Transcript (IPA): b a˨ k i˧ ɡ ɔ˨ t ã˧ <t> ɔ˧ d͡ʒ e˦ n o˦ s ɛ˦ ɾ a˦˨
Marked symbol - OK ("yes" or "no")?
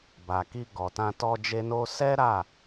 yes